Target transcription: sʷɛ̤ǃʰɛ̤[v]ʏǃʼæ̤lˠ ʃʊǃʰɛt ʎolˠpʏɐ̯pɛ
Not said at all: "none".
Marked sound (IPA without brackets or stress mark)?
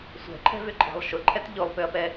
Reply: v